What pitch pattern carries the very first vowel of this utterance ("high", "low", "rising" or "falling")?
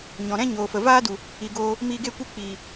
low